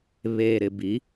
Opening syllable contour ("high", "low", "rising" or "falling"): low